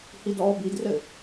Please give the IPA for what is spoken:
h i d ɔː b i d r ɘ

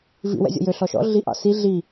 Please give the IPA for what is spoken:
v ḭ w ɛ̰ zʲ ɔ̰ j ø ɬ ɔ ʃ ɔ̰ ɮ i ʔ ɑ̰ s i ɮ i

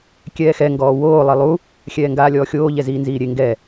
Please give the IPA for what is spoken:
kʲ ɛː x ɛ ŋ ɡ ɔː w oː lˠ i lˠ u | xʲ ɛː ŋ ɡ aː lʲ ɔː xʲ oː ʎ ɛ z iː n z iː ɾʲ e ŋ ɡ ɛ

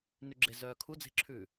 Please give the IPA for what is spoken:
n ʉ ɡ͡ǁ e z œː kʰ u d͡z e̤ ǁʰ ʉː

